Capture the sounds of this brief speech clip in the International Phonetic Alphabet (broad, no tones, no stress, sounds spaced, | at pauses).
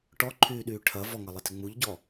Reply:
ʈ ɔ ǃʰ yː ɗ yː ʈʰ ɐ v ɔ ŋ ɐ lˠ ɪ t ɪ ŋ͡m u ʎ ɟ ɔ